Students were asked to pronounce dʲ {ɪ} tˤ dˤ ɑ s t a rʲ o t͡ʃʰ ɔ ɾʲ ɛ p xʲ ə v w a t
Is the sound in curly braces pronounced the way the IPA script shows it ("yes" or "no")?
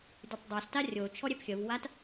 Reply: no